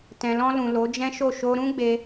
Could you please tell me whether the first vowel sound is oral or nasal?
nasal